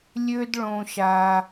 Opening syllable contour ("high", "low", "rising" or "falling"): high